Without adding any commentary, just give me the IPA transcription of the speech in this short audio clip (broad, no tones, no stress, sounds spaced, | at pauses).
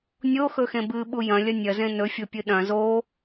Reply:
nʲ o x ɵ x ẽ b ɨ ɓ u j ɐ̃ lʲ ɐ nʲ ɐ z ẽ n ɵ fʲ o pʲ ɨ ɗ ɐ̃ z o